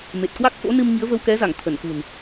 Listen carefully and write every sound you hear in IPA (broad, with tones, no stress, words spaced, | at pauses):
me˨˩t̚kwa˦˥k̚ fo̰˧˥nɨ˧m ŋi˨˦ə̯və˧wkɛ˨˦za˧˩ŋ t̪ʰə˧˩nkṳ˨˩n